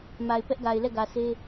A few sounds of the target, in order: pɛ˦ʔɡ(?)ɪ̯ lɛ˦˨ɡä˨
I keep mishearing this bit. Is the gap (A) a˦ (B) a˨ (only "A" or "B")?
B